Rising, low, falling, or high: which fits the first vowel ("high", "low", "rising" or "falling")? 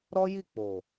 high